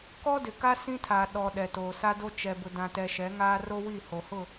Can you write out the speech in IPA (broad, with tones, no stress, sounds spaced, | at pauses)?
k ɔ˦ d ɪ˨ k a˦ s ĩ˦ tʰ a˨ ɗ ɔ˨ ɗ ɛ˨ t oː˨ s a˦ d o˦ t͡ʃ ɛ˨ b ʊ˨ d ã˨ t ɛ˨ ʃ ɛ˨˦ ŋ aː˦ r o˦ w i˦˨ h o˨ h ʊ˦˨